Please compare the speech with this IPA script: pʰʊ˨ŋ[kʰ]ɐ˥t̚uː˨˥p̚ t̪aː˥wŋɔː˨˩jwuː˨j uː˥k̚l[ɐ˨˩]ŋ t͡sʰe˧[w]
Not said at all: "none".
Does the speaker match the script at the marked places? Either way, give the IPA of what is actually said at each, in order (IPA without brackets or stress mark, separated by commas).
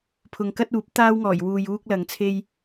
k, ɐ˨, j